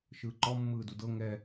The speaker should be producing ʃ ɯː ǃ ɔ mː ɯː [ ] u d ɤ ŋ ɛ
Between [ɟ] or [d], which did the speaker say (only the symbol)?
d